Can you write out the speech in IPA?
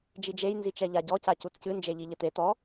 d͡ʒid͡ʒej nzit͡ʃɛʎaɟɔ cacutcɨ nd͡ʒeʎiʎɘt̪e t̪ɔ

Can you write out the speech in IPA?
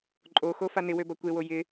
ǃʼoxo fanɪwø bʌkʷewo jɪ

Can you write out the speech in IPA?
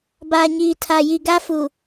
baː˨ ɲiː˨ tʰa˨ji˨ɡa˦fu˨

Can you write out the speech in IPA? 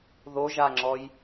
ðo ʒaŋ͡ǁɔj

